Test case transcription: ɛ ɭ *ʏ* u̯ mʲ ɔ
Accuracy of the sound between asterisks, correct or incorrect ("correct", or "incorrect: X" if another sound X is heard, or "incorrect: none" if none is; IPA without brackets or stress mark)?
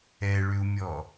correct